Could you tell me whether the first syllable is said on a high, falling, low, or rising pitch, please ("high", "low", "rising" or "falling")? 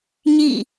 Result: falling